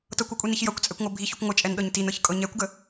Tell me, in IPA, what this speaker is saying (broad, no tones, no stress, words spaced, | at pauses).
tɤkʷukʷʼiniç jʌkʷt͡sʼɛkʷŋʷɤ bʱiçykʷ ŋʷɪt͡ʃʼɛnɗɤɲ tinɤçkʼɤ ɲɛkʷɡə